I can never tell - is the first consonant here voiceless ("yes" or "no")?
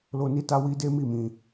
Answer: no